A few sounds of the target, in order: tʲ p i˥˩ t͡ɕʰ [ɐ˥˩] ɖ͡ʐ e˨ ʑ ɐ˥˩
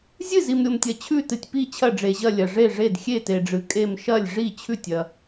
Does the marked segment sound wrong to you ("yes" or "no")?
no